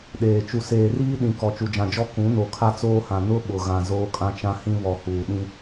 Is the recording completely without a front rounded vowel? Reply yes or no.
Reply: yes